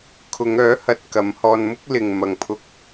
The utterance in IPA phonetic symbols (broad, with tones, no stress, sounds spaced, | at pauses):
kʰ ʊ˨˧ ŋ œː˨˥ h ɐ˨ t̚ k ɐ˨˥ m h ɔː˧ n m ʊ˥ k̚ l ɪ˨ ŋ m ɐ˨ ŋ pʰ ʊ˧ k̚